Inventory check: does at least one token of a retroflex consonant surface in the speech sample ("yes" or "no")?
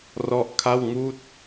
no